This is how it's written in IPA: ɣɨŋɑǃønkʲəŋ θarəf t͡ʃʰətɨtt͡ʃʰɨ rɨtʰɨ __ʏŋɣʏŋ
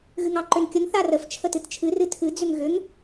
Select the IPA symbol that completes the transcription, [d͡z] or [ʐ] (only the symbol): d͡z